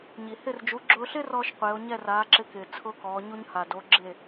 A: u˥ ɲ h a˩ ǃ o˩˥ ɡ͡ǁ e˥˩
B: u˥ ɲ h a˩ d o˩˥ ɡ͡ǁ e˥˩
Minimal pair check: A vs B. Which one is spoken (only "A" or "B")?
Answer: B